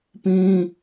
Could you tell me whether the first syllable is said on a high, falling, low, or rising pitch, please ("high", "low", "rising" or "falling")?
high